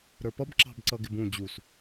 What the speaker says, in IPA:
ɾ ə˞ p ʌ b ǁ ɑ̤ b ǀ ʌ ɡ ɪ b ũ d͡ʑ u s

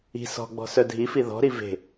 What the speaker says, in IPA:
i̤ s ɔ̤ ɡ͡b ɔ̤ s œ dʱ i f i ð ɔ̤ ɾ i v e̤

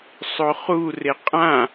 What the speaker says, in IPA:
sˤ o χ u r e qʼ ã

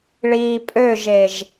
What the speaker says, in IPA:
ɭ iː pʼ ø ʒ e ʒ

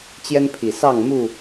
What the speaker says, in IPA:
t͡ɕ j ɛ˦ n pʰ i˨˩ s ɑ˥˨ ŋ m u˥˨

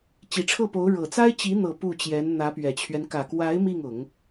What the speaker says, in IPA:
t͡ɕ i˨˩ ʈ͡ʂʰ ɤ˥˩ p o˧˥ ʊ̯ ɻ ɤ˨˩ t͡s a˥ ɪ̯ t͡ɕ i˧˥ n̪ ɤ˨˩ p u˥˩ t͡ɕ j ɛ˧˥ n n̪ ä˧˥ p ɥ ɛ˨˩ t͡ɕʰ ɥ ɛ˦ n k ä˨˩ k w a˧˥ ɪ̯ m i˥˩ ŋ ʊ˨˩˦ ŋ

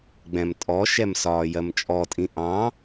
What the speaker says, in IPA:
ɡ͡b ɛ̃ m tʼ ɔ ʃ ɛ m s ɒː j ɜ m t͡ʃʼ ɔ tʼ ĩ ʔ ɑ̃

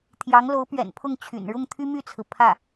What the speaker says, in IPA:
t̪ʰ j ɑ˧˥ ŋ l o˧˥ ʊ̯ p ɥ ɛ̰˨˩ n pʰ ʊ˥˩ ŋ t͡ɕʰ y̰˨˩ n ɻ ʊ˥˩ ŋ t̪ʰ y˥ m y˥˩ t͡sʰ ɹ̩˩ pʰ ä˥˩

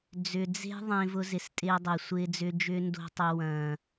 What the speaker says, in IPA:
d͡z ʏ˨ d͡z e̤˦ ðˤ ẽ˦ v ʊ˦ z ɪ˨ s tʼ ɪː˦ dˤ e˨ sʷ ɪː˦ d͡z ʏː˦ d͡ʒ ʏː˦ n d o̤˦ tˤ ʏ˨ w ɐ̃ː˨

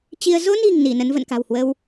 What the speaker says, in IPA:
t͡ɕ i˧ ə̯ z o˧ n i̤˨˩ ŋ n i˧˩ n ə˨˦ n v ə̰˧˨ n k a̤˨˩ w h w ə˧ w

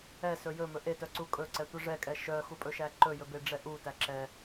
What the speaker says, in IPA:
ɛ s ɵ j ɵ m ɵ ʔ e t œ ǀ u kʼ ɵ ǀ ɛ tʷ ɛ ʐ ɛ kʼ ɛ ʃ œ x u pʼ ɵ ʃ æ ǃ ɵ j ɵ b e ɖ͡ʐ ɛ ʔ u t æ ǁ ɛ

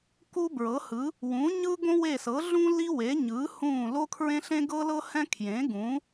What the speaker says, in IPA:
k u˥ b ɹ ɤ˨˥ h ɯ˨˥ | w ũ˨˥ ɲ ɯ˥ ɡ õ˥ w e˦˨ s ɤ˨˥ ɮ ũ˥ l i˥ w e˨˥ ɲ ɯ˨˥ h ũː˦˨ l o˥ kʰ ɹ ẽ˥ ɬ ẽ˥ ɡ ɤ˥ l ɤ˥ h ɛ̃˥ kʰ j ẽ˨˥ ɡ ũ˨˥

